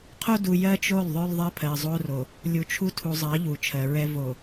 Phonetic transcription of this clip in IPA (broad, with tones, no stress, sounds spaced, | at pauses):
qʰ o˦ d u˨ j ɜ˦ t͡ʃ o˦˨ lˠ ðˤ o˦ lˠ ðˤ ɜ˦ pʰ ɜ˨ zˤ o˦ r o˨ | lʲ u˨ t͡ʃʰ u˦ tʰ u˨ zˤ ɜ˨˦ ʎ u˨ t͡ʃʰ ɜ˨ ɹ ɛ˦ v o˨